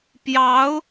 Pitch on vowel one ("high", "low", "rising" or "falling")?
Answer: rising